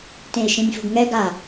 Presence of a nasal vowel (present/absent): present